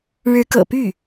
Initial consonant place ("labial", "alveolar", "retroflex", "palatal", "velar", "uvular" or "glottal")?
retroflex